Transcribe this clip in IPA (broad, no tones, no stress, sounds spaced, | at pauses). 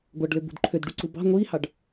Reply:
ɡʷ ɑ ɖ l ø b ṳ d ǃʰ ø d ɖ u ǀ ɯ b ɑ̤ ŋʷ iː h ɑ ɖ